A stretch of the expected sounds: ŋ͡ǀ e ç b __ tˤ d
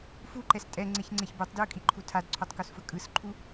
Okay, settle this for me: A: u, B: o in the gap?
B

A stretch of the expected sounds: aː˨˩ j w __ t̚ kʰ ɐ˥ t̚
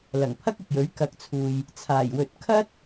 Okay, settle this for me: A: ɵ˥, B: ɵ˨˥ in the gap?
B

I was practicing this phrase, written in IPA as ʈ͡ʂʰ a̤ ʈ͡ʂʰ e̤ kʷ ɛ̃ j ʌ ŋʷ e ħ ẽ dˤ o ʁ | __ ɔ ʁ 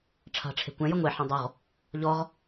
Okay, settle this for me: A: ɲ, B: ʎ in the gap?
B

